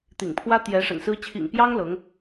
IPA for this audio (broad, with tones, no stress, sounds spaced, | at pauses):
t̪ ḭ˨˩ ŋ pʰ w ä˥ t̪ j ɛ˧˥ ʂ ə̰˨˩ n s ɹ̩˥ t͡ɕʰ ḭ˨˩ ŋ p j ɑ˥ ŋ l ɤ˧˥ ŋ